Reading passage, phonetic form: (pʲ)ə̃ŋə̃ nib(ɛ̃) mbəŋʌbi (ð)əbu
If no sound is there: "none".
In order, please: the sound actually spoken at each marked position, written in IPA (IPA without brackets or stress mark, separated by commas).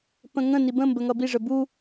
p, ə̃, ʐ